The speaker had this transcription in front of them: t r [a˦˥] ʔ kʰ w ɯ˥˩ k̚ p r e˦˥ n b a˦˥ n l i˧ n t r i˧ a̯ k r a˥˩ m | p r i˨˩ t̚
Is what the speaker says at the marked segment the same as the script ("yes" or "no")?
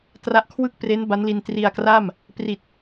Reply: yes